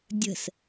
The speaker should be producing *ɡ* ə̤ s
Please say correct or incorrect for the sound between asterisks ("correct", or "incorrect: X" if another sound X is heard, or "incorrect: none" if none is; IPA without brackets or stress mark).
incorrect: dʲ